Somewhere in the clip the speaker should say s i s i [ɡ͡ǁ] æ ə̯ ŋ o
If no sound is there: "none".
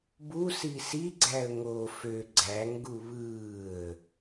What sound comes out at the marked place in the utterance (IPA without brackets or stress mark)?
ɡ͡ǀ